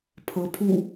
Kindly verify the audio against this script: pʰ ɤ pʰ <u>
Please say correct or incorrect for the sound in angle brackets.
correct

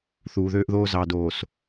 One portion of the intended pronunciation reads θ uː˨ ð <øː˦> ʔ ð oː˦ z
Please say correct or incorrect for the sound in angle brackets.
correct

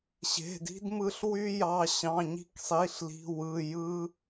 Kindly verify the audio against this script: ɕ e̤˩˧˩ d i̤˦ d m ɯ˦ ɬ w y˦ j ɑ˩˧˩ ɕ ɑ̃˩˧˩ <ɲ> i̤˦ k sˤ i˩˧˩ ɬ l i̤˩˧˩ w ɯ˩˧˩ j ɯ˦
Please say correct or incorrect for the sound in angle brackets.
correct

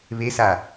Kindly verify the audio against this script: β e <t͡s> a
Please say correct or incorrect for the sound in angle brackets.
incorrect: s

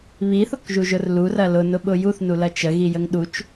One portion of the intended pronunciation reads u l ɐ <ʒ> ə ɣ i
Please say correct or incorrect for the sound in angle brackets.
incorrect: t͡ʃ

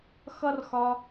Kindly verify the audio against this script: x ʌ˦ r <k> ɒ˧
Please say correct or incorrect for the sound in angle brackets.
incorrect: x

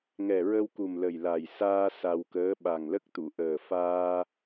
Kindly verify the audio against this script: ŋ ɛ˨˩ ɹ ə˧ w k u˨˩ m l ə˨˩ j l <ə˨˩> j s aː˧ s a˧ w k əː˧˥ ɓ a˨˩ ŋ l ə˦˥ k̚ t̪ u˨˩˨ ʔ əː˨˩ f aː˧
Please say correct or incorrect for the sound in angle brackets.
incorrect: a˨˩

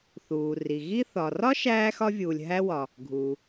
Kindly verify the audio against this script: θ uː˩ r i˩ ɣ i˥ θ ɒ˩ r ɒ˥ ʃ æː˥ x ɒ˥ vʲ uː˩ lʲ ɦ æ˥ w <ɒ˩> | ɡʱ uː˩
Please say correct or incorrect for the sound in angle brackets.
correct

